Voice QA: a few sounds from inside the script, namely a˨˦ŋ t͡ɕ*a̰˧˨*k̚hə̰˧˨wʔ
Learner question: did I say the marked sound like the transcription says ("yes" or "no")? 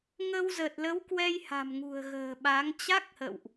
no